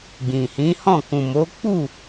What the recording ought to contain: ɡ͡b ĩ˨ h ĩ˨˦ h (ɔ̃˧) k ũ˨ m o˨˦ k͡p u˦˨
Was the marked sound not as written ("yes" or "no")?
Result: yes